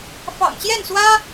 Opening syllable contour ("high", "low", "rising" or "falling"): low